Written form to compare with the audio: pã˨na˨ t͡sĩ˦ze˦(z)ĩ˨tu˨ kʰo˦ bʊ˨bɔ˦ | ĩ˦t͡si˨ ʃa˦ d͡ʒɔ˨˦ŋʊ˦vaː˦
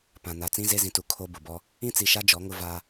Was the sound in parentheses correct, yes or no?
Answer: yes